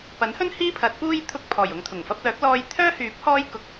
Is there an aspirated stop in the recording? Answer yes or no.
yes